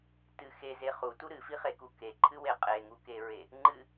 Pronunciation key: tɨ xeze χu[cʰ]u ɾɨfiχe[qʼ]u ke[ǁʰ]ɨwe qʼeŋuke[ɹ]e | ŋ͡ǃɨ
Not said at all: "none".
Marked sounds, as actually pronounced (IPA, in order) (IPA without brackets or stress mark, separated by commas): t, k, ǃʰ, ɹ